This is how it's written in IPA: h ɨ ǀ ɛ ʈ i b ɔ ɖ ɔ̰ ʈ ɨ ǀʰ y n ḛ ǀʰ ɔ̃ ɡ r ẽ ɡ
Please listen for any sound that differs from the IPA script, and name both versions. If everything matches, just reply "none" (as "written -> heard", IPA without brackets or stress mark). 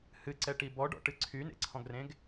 none